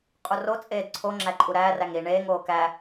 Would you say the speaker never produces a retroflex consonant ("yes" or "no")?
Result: no